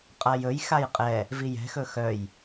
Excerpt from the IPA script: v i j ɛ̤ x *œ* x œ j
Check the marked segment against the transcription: incorrect: ɵ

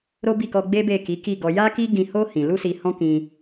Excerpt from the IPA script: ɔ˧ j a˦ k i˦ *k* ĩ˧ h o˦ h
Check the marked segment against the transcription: incorrect: ɡ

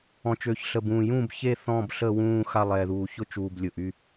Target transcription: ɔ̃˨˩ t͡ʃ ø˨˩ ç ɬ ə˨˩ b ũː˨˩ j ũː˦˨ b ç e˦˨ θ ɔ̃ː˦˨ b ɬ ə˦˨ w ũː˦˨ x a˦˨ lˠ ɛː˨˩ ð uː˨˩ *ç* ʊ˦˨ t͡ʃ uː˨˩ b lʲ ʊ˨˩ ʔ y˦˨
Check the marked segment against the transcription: correct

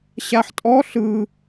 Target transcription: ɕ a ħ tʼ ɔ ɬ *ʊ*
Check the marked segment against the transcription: incorrect: ɯ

